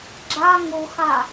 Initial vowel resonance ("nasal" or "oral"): oral